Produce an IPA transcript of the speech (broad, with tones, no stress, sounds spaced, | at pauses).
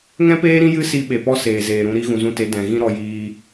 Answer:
ŋ ɛ̃˦ p eː˦ ɾ ĩ˦ j ɨ˦ s i˧ ɓ e˨ p ɔ˦ s eː˨ z eː˨ ɾ ũ˧ ɾ i˦ ɣ ũ˨ z ũ˧ t e˨˦ d ɛ̃˨ ɣ ĩ˦ ɾ ɔ˧ j iː˧